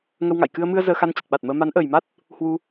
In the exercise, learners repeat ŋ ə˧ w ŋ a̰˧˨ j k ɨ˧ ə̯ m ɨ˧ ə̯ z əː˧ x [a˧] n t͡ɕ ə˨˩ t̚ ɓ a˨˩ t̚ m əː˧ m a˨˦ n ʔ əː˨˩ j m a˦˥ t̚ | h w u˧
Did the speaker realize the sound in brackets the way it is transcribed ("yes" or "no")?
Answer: yes